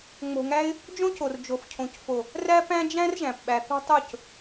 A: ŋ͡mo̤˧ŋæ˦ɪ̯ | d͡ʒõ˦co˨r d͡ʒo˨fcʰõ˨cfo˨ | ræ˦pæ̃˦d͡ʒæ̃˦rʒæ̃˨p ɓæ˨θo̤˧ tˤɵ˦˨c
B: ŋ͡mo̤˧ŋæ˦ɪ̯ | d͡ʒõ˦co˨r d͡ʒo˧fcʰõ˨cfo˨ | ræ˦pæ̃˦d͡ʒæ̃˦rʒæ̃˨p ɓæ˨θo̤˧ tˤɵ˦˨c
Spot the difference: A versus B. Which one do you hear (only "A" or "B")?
A